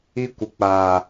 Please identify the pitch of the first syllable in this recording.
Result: high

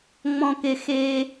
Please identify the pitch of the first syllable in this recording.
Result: low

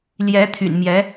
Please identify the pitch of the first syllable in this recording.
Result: rising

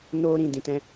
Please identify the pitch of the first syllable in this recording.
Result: high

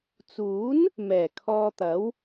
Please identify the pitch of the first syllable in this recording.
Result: rising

